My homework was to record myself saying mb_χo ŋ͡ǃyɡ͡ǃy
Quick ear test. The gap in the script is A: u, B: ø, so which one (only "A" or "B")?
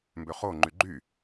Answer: B